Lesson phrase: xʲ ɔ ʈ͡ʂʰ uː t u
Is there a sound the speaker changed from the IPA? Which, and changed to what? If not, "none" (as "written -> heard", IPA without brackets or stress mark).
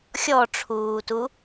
none